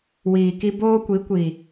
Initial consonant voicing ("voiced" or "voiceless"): voiced